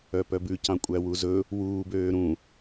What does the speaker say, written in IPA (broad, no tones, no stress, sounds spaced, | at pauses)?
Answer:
œ p œ b ʉ c ɑ̃ kʷʼ æ w u z ɵ | w uː b øː ɾ ũ